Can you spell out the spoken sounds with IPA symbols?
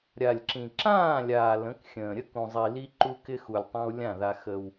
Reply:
ɾʲ a˨ lʲ ǁ ĩ˨ ǁ ãː˦˨ lʲ aː˨ l ə̃˨˦ k xʲ ə̃ː˨ ɾʲ ə˦ k ũ˨ zˤ i˨ l i˦ ǃ u˦ k ɪ˦ x u˨ lʲ tˤ ã˦ w lʲ ã˦˨ ð a˦ x ə˦ w

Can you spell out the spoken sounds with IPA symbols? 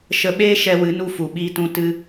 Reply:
ʃ ə˧ ɓ eː˦ ʃ ɛ˧ w ɨ˨˦ n u˧ f u˨ ɓ iː˧ t ũ˧ t ɨ˧

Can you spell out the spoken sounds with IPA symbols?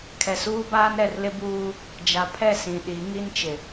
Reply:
kʰ ɛ˨ s uː˦ b aː˦ n ɾ ɛ˨ r l ɪ˦ b uː˦ | d͡ʒ a˨ pʰ ɛ˦˨ s ĩ˨ ɗ i˨˦ ŋ i˦ n t͡ʃ ɪ˨

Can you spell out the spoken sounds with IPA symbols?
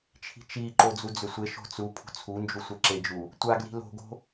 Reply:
t͡ʃʰ i̤ t͡ʃ i ǃ o d͡z u d͡z ʏ sʷ e ʃ o̤ t͡s u pʰ ṳ t͡sʰ u n d͡ʒ u sʷ e ǁ e d͡ʒ u | tʷ a ɡ l i̤ l o̤ ɡ o̤

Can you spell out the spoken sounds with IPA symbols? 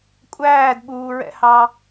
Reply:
kʷʼ æː d ɓ uː ɹ ɛ̰ h ɑ

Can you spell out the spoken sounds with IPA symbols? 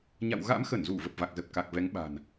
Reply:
ɲ a̰˧˨ w ɣ a̰˧˥ m x ə˧˩ n z u˧˩ v ə˨˩ p̚ v a˨˩ k̚ z ə˨˩ p̚ k a˨˩ k̚ v ɛ˨˦ ŋ ɓ a̤˨˩ n

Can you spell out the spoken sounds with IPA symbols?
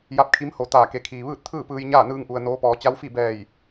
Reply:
j a˧˥ p̚ kʰ i˧˥ m h o˧˩ t̪ aː˧˩ k e˩˧ kʰ iː˩ ʋ ɯː˥˨ t̚ t̪ʰ ɯː˥˨ p ɯː˧ j ɲ aː˥˨ n ɯː˧ ŋ ʔ u˩ ə̯ n oː˧˥ p ɔː˩˧ t͡ɕ a˧˥ w f i˥˨ b ɛː˧˩ j

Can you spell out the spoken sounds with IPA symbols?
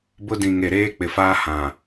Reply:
b ʊ˦ d ĩ˨ ŋ e˨ ɾ eː˦ k͡p ɪ˨ f aː˦ h ã˨

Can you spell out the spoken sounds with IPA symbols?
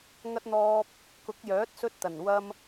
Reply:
ŋ ɐ˧ t̚ n̪ ɔː˧ p̚ | k ʊ˨˥ k̚ j œː˨˥ t̚ s ɵ˧ t̚ t̪ ɐ˨˩ n w ɐ˧ m

